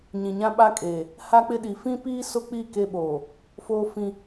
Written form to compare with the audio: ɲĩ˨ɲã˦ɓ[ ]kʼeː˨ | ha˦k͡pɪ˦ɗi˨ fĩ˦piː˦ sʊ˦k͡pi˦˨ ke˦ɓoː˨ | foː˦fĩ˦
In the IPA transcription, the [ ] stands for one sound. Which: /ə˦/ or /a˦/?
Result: a˦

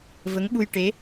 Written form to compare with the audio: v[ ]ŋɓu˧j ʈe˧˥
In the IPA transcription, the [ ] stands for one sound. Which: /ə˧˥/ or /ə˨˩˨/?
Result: ə˧˥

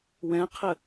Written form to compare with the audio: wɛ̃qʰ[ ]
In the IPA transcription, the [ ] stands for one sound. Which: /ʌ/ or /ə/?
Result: ə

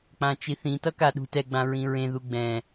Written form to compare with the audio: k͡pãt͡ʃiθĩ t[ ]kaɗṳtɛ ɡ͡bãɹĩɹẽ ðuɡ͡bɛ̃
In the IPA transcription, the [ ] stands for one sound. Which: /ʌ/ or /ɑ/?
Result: ʌ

